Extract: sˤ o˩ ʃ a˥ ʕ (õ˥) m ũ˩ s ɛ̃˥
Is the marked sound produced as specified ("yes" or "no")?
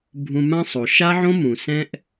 yes